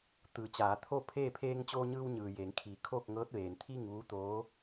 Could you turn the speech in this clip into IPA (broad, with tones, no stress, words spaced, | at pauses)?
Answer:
t̪ɯː˩˧t͡ɕaː˩˧t̪ʰo˥˨ pʰeː˥˨ pʰeː˧ŋt͡ɕoː˧ɲɯː˧w ɲɯː˩jeː˩˧ŋkʰiː˩˧ kʰoː˥˨k̚ŋɤː˧˥t̚ ʋeː˩nt̪ʰiː˥˨ŋʋuː˧˥ t̪oː˧˥